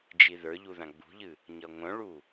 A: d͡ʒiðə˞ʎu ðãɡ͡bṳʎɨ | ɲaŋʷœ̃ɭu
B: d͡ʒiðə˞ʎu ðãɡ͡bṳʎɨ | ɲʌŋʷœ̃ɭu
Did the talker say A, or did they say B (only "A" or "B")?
B